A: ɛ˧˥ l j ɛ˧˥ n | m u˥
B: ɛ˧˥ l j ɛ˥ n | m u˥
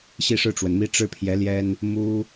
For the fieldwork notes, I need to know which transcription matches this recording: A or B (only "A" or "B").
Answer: B